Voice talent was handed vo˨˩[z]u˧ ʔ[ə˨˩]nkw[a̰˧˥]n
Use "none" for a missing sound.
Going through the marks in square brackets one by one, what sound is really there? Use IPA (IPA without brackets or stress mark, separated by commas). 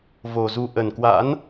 z, ə˨˩, a̰˧˥